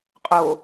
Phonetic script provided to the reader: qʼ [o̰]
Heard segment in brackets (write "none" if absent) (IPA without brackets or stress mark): o